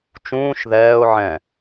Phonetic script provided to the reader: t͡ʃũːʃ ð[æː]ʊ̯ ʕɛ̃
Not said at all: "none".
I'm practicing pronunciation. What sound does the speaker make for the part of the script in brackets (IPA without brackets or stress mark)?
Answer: ɛː